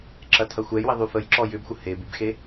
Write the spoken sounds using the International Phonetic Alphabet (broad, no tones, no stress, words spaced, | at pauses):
ǁɐtʰɐxʷɛjwi ðˤyfəj ǁɔjʏbxʷə hebybxe